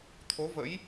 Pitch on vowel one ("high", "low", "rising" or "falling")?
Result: rising